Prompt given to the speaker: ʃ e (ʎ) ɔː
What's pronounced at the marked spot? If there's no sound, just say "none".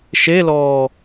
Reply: l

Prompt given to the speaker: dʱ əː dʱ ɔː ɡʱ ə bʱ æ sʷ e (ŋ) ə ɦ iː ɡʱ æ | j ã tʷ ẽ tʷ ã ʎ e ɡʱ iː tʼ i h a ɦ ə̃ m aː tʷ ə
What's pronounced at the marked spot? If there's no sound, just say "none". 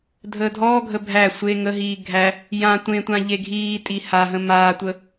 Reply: ŋ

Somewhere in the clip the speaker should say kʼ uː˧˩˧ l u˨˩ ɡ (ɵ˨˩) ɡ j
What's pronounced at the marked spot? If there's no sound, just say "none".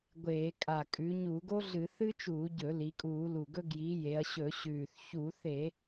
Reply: ɵ˦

